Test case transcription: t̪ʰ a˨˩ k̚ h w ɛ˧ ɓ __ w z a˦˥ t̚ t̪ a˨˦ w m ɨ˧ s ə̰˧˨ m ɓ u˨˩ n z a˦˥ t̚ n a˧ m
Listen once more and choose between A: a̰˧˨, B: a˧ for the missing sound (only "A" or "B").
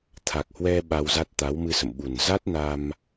B